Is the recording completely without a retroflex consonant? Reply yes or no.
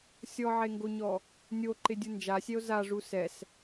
no